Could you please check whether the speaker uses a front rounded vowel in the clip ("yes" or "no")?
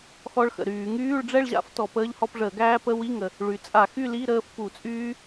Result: yes